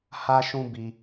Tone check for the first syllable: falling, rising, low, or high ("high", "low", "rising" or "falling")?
high